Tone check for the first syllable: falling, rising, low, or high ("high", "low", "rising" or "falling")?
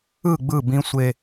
falling